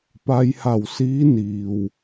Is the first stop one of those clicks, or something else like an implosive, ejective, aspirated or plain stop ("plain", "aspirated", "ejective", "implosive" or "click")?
plain